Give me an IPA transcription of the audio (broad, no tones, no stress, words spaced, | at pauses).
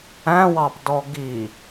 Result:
æ̃wɑpdɔ ɡi